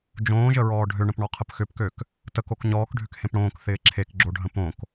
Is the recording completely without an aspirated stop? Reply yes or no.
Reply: no